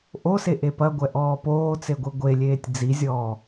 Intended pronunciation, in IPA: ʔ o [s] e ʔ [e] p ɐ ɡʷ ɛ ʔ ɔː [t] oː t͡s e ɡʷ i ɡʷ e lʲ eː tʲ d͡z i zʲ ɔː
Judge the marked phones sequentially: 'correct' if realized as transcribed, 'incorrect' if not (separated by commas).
correct, correct, incorrect